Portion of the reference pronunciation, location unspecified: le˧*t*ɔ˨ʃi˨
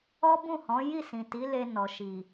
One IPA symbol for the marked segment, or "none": n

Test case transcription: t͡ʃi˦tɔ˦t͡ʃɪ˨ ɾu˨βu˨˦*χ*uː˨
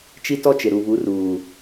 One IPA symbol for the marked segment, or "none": r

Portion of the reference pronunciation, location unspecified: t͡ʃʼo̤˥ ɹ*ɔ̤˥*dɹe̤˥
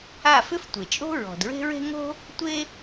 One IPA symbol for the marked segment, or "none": ɔ̤˩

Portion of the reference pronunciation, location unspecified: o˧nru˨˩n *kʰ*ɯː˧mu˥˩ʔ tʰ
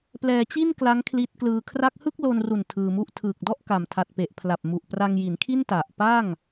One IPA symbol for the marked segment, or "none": tʰ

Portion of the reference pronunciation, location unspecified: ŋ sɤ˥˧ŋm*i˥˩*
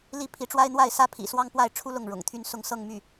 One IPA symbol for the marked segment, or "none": y˥˩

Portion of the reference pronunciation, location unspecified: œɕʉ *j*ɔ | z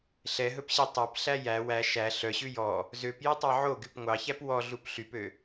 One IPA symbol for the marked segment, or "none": j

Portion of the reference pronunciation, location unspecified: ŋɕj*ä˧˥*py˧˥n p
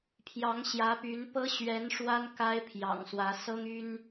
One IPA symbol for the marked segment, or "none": ä˧˥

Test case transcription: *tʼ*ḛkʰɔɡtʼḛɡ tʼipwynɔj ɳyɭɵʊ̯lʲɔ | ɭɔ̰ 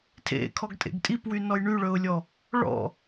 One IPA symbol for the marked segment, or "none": tʰ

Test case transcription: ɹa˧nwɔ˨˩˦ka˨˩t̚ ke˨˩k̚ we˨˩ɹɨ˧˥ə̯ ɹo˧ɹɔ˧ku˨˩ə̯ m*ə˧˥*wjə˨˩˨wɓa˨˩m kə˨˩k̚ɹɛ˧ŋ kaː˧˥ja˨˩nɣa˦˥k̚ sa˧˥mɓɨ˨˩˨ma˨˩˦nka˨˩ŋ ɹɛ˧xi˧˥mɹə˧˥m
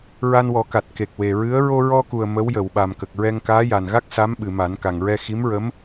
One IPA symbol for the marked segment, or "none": ə˧˥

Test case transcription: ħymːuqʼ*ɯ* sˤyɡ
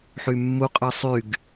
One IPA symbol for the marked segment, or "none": ɯ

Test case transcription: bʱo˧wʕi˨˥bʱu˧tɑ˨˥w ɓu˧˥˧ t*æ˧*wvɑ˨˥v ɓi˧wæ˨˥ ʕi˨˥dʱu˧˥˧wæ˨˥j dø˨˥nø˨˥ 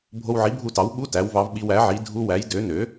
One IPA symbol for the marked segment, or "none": æ˨˥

